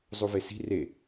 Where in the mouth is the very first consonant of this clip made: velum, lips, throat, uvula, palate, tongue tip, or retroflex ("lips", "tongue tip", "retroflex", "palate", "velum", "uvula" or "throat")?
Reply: tongue tip